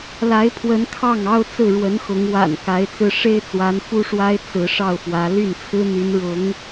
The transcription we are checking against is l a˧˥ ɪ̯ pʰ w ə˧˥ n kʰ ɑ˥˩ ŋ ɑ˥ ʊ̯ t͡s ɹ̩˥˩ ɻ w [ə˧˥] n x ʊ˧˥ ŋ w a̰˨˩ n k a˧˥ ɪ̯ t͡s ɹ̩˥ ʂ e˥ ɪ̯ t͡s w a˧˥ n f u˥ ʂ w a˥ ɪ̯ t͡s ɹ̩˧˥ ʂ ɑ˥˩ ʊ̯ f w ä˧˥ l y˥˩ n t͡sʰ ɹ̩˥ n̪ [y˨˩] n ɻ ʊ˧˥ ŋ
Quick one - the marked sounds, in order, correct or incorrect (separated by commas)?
correct, incorrect